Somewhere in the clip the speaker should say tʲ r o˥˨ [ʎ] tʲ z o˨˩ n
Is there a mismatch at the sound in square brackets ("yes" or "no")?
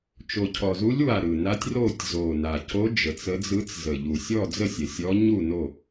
yes